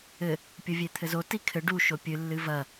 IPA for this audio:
ɘ | pʲ o vʲ e t̪ʰ ɘ z o t i kʰ ɘ ɖ u ʃ o pʲ ɨ lː ɨ v ɐ

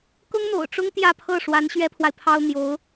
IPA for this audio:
k ʊ˥ ŋ n̪ o̰˨˩ ʊ̯ ʈ͡ʂ ʊ˥ ŋ t̪ j ä˥˧ pʰ ɤ˥˩ ʂ w a˧˥ n ɕ ɥ ɛ˥ pʰ w a˨ ɪ̯ pʰ ɑ˥ ʊ̯ n̪ j o˧˥ ʊ̯

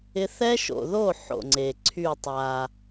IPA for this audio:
ɪ˧ θ ɛ˦ ʃ o̰˨ ð o˦˨ ħ o̰˨ ŋ͡ǀ e˨ ǀʰ y˦˨ tˤ a˨

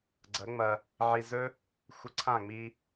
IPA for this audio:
ɡ͡ǀ ɐ˨˦ ŋ͡m ɐ˧ | ʕ i˧ z ɵ˦ | xʷ ə˧ ǀʰ ã˦˨ ŋ͡m i˧

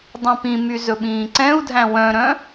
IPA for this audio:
dˤ ĩ p ĩ m y z ɵ ɓ ĩː ǀ ɛ̃ u̯ dʱ æ̃ w œ̃ ɾ œ̃

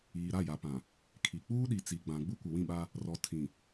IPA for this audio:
iː˨ ɾ a˦˨ j a˨ p ã˨ | kʰ i˨ k͡p uː˦ ɗ i˨ t͡s i˨ ɡ͡b ã˨ ɡ͡b u˦ kʷ ɪ˨ w ĩ˦˨ ɓ a˦ | r ɔ˨ tʰ ĩ˨

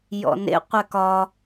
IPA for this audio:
j ɔ̰ n ḛ qʷ ɛ k ɒ

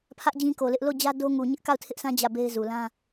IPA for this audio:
pʰ ä˦ ʔ d͡ʑ ĩ˦ k o˨ l ɪ˦ ʔ l o˦˨ d͡ʑ ä˦ d o˦ ŋ u˨ ɲ ɪ˦ ʔ k a˦˨ ʊ̯ tʰ ɪ˦ ʔ sʰ ã˦ d͡ʑ ä˦˨ b e˦ ɪ̯ z u˨ l ã˦

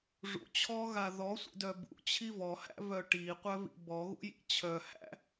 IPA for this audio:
ʐ ṵ t͡ɕʰ ɔ ɣ a ð ɔ sʷ ḭ d œ b ṵ t͡ɕʰ i v ɔ h æ̰ v œ ʈ i qʷ œ v ḭ b ɔ ɣ ṵ j ḭ t͡ɕʰ œ h æ̰

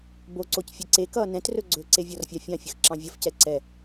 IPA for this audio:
b o ǀ o c fʲ e ǀ e k ʌː n ɛ̃ t r ɵ ɡ͡ǀ ɵ ǀ e vʲ ɔ r fʲ ɑ fʲ ɑ̃ fʲ ə x ǁ ɑ̃ vʲ ʌ f c ɛ ǀ ɛ

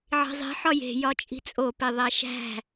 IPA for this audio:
ʕ i̤ zˤ i̤ ħ ɒ j e̤ j ɒ t͡ʃʼ i̤ t͡sʼ o p e ðˤ æ ʃ æ̤

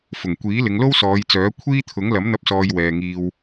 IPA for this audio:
f ʊ˨˩ ŋ kʷ iː˨˥ l ɪ˨˧ ŋ l o˥ w s ɔː˨˧ j t͡s œː˨˥ kʷʰ iː˥ t̪ʰ ʊ˨˥ ŋ l ɐ˨˥ m n̪ ɐ˧ p̚ s ɔː˧ j w ɛː˨ ŋ iː˧ w

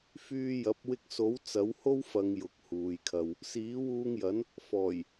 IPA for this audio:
f yː˧ j ɐ˨˥ p̚ w ɪ˧ k̚ s o˨˥ w t͡s ɐ˨˥ w h o˥ w f ɐ˨˧ ŋ j ʊ˨˥ k̚ h uː˨ j kʰ ɐ˧ w | s iː˨˥ w uː˧ ŋ j ɐ˨˥ n | f ɔː˨˩ j

